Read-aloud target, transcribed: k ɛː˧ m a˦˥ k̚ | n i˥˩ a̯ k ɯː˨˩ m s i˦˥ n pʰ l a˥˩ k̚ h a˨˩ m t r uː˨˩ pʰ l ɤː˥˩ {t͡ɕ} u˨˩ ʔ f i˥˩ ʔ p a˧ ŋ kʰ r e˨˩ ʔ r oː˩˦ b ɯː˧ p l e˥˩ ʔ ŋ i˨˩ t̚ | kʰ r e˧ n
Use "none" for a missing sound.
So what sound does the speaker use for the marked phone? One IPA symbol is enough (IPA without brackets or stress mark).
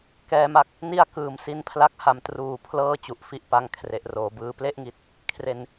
t͡ɕ